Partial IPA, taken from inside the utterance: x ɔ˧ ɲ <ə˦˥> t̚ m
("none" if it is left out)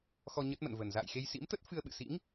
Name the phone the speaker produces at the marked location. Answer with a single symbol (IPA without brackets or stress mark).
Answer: ə˦˥